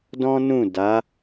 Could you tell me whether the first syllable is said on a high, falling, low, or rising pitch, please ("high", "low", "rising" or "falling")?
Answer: high